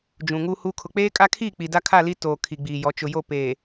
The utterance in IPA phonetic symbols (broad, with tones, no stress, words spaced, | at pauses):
d͡ʒũ˨ŋu˦hu˦ kʰʊ˨k͡peː˦kʼa˦kʰiː˦˨ k͡pi˨da˦kʰa˦˨li˦ toː˨ kʰi˨ɡ͡biː˨jɔ˨˦ t͡ʃʊ˨jo˦˨ peː˨